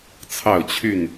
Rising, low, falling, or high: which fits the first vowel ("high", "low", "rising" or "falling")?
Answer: falling